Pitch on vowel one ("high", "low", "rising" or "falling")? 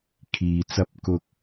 low